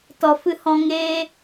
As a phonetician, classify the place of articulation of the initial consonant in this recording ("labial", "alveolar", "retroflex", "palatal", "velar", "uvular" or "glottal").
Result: alveolar